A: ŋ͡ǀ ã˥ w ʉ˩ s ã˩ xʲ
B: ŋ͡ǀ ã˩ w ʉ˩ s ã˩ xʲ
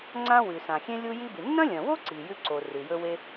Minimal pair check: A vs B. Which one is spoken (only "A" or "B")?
A